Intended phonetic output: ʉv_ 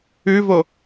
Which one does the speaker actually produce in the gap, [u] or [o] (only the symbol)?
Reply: o